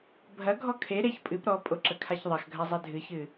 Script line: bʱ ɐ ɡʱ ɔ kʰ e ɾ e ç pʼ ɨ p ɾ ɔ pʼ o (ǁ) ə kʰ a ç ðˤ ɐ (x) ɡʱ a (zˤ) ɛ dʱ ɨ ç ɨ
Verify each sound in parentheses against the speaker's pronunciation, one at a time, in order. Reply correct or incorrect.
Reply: correct, correct, correct

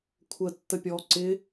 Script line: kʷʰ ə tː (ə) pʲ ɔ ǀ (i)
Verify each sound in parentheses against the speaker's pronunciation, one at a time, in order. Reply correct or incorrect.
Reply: correct, incorrect: ɪ

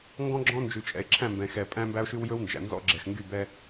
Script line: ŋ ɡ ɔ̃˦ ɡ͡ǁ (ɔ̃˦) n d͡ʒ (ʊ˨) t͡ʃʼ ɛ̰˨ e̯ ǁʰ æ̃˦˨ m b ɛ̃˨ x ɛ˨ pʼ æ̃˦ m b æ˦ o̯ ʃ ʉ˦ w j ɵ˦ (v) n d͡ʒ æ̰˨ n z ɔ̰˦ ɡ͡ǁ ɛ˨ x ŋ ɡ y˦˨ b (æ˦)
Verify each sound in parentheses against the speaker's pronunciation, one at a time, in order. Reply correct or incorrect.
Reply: correct, incorrect: ʉ˨, incorrect: w, incorrect: ɛ˦

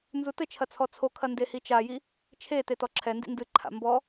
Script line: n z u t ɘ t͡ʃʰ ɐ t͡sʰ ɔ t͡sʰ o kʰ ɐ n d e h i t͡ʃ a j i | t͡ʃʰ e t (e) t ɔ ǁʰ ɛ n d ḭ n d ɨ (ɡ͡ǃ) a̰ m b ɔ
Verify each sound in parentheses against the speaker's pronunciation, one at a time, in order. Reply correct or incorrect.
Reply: correct, incorrect: ǃʰ

